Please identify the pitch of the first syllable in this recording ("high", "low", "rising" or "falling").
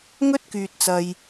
high